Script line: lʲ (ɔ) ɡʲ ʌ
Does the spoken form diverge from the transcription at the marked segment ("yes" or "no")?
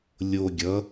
yes